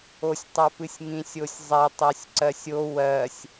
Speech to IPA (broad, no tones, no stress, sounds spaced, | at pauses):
o sʲ tˤ œ p ɨ sʲ ŋ ĩ sʲ o sʲ zˤ ɛ tˤ o sʲ ǀ ɜ sʲ o w ɜ sʲ